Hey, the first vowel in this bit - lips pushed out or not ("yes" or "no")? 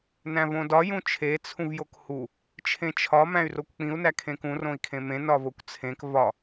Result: no